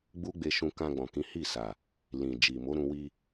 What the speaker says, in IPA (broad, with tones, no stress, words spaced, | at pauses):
ɡ͡bu˦ɡ͡be˧ ʃũ˧ kã˧ɡ͡bɔ̃˨kĩ˨˦ hi˦˨sa˨ | lĩ˨ d͡ʒi˨mo˨˦ɾũ˧wi˧